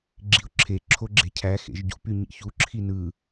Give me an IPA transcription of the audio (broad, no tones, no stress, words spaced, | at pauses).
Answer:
ɡ͡ǁiʊ̯ǁʰe ǁʰoɡ͡ǁe̤cʰæ xḛʒɟṵp yɲḭçu ǁʰinɯ